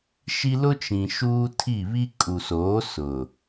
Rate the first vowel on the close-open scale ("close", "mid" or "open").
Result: close